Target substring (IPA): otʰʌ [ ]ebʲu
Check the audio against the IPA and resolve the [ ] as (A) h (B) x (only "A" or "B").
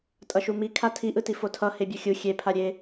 A